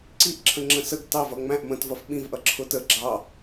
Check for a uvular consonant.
absent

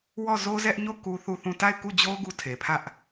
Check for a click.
absent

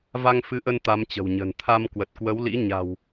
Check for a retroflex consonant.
absent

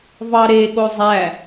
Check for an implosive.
present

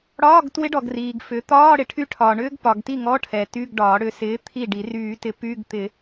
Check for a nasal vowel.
absent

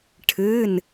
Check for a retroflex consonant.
present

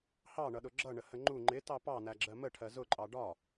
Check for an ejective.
present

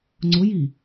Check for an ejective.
absent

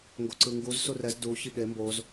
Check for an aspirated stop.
absent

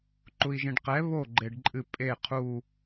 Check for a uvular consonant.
present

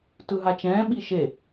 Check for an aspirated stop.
absent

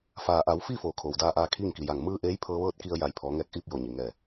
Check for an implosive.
absent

